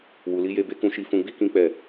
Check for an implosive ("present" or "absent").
absent